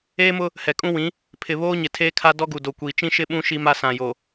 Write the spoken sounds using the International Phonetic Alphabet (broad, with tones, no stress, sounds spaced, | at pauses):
eː˦ m ʊ˦ | h ɛ˨ kʼ ũ˦ w ĩ˨˦ | pʰ ɪ˨ β oː˦ ɲ ɪ˨ tʰ eː˦ kʰ a˦ d ɔ˦ ɡ u˨ d o˨ kʷ iː˨ t͡ʃ ĩ˦ ʃ ɪ˦ ɓ ũ˦ ʃ i˦ m a˦ s ã˨ j o˨